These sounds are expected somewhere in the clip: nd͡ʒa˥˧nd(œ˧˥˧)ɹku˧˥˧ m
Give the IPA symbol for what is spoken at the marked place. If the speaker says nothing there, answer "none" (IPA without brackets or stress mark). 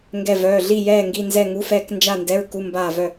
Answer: ɛ˧˥˧